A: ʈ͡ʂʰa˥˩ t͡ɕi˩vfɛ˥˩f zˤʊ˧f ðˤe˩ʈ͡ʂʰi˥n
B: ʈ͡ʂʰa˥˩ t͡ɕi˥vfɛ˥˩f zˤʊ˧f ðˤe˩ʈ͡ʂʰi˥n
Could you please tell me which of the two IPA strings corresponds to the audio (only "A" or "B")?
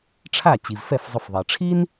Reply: A